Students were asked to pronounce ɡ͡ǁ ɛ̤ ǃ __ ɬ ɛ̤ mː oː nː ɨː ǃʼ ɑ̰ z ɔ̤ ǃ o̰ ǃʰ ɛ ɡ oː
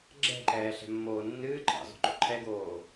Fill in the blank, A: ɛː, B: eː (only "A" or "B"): A